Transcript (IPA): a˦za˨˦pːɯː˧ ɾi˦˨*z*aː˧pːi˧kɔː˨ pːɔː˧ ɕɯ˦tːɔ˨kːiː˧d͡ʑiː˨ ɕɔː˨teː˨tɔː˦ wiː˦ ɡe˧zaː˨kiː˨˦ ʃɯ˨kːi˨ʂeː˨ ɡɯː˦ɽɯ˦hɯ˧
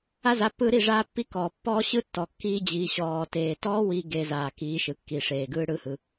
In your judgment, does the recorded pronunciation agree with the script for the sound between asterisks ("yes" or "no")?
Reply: no